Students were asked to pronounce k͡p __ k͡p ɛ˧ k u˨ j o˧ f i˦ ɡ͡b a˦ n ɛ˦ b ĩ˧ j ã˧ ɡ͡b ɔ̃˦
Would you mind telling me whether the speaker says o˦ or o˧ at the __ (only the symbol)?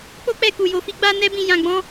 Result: o˦